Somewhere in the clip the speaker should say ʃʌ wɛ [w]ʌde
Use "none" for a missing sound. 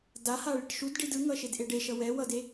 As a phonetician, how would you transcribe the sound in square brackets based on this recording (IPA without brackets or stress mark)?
w